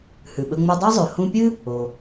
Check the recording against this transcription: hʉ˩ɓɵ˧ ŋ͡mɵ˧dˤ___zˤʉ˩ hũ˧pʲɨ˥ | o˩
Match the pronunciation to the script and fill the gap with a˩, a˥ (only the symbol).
a˥